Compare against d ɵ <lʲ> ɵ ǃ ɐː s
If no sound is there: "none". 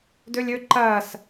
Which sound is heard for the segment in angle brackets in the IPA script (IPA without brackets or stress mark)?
lʲ